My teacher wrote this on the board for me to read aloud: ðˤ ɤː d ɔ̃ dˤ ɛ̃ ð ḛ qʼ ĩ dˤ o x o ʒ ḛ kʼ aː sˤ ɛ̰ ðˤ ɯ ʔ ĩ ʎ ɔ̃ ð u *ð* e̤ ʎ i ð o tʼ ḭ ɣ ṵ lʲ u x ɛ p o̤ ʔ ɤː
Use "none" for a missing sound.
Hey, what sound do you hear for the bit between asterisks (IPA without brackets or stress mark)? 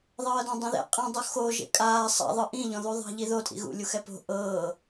ðˤ